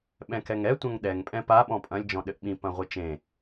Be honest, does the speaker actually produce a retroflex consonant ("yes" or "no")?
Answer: no